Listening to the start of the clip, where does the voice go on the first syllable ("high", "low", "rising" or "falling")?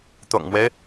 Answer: low